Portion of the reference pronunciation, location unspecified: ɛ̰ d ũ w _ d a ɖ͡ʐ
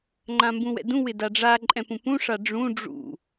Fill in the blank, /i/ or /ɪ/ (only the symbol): ɪ